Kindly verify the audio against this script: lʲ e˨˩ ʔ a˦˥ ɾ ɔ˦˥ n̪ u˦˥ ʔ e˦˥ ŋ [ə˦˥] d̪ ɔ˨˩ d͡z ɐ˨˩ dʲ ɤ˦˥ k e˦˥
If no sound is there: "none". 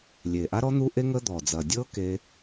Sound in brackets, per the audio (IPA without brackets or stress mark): ə˦˥